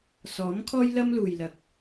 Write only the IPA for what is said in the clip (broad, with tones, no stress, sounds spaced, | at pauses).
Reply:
s ɔː˨˥ m kʰ ɔː˥ j l ɐ˥ m l uː˨ j l ɐ˨ k̚